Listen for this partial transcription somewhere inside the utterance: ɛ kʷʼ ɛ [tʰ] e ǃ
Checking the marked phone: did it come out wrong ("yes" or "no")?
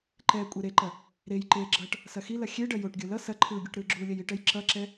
yes